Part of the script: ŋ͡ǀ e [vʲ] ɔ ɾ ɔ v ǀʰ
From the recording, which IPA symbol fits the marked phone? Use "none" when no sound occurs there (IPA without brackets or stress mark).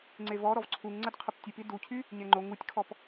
v